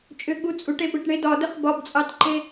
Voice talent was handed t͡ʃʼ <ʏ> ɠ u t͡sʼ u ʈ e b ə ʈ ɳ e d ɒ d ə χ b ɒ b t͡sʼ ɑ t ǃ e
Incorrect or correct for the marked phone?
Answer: correct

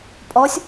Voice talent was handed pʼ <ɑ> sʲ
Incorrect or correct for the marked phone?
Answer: incorrect: ɔ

